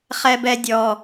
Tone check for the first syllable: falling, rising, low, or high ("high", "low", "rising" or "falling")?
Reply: high